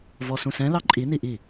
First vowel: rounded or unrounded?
rounded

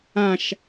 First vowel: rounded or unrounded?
unrounded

